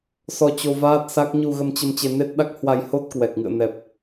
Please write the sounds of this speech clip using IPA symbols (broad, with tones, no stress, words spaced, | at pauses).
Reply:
sɔ˧t͡ɕo˧vaː˦˥t̚sa˦˥k̚ ɲu˧ɣə˧mt͡ɕə˧m t͡ɕe˧ne˦˥t̚ɗa˦˥k̚ hwa˧jho˦˥t̚ kwɛ˨˩k̚ŋɨ̰˧˨ə̯nɛ˨˩p̚